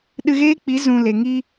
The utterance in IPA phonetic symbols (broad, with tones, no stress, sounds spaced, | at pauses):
ɗ ɨ˧ ɣ eː˦ k͡p i˨˦ z ũ˧ l e˨ ŋ i˧